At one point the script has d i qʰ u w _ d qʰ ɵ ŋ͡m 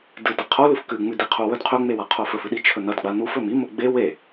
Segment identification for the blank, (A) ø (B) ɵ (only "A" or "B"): B